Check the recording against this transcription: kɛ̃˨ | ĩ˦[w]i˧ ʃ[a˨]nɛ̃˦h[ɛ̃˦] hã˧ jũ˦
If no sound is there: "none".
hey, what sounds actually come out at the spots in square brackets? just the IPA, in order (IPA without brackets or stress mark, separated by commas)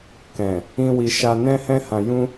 w, a˧, ɛ̃˦